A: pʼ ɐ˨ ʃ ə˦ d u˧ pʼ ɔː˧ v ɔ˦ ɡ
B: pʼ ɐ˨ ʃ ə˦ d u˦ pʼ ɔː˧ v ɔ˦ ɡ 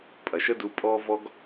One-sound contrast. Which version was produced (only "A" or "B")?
A